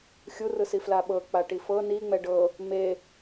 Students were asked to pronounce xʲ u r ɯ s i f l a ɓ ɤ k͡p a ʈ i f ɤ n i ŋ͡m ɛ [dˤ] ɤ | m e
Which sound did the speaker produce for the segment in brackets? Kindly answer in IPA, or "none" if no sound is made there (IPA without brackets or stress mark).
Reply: ɖ